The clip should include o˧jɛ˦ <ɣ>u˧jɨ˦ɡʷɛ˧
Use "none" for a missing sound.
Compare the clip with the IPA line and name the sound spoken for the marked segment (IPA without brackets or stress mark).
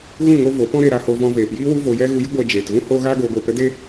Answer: ɣ